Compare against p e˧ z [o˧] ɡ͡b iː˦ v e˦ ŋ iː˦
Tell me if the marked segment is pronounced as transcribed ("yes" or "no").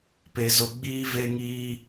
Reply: yes